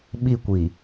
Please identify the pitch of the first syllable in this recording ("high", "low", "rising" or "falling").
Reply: falling